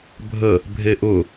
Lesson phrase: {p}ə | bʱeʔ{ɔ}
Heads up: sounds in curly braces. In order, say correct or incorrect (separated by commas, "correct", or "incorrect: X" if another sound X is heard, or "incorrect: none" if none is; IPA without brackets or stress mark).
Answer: incorrect: bʱ, incorrect: ʊ